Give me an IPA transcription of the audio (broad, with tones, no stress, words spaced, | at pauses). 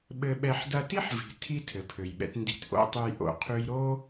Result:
ɓɘ˧ɓɛ˧ħ dɐ˧ti˦ħvi̤˨ tʰi˦tʰɘ˨pʰø˨jɓɛ̰˧t ndi̤˧tʔo̰˦tˤʉ˧j ʔo̰˨qʰʉ˧jɾo˦